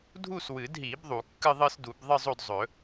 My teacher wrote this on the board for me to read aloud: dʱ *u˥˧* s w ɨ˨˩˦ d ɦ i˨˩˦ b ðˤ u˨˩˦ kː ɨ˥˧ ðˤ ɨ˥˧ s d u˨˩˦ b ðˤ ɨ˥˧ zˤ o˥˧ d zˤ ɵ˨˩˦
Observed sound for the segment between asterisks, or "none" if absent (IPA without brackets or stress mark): u˥˧